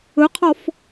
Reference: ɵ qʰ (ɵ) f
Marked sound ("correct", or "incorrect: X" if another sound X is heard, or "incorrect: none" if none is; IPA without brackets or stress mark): incorrect: ɔ